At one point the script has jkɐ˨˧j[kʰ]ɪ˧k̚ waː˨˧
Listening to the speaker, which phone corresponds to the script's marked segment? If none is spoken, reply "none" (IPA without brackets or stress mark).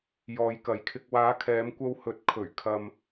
kʰ